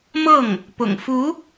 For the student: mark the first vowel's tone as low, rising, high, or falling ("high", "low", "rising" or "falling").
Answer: falling